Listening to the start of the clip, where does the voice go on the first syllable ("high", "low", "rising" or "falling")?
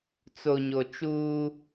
low